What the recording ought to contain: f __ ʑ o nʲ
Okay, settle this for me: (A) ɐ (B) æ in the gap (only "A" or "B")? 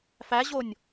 B